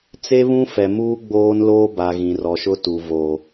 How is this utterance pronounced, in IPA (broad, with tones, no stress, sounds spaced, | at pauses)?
t͡s e˦ β ũ˦ f ɛ˨ m uː˦ ɡ͡b oː˦ n l oː˦ b a˨ ɣ ĩ˨ r ɔ˨ ʃ ʊ˦ t u˨ v o˨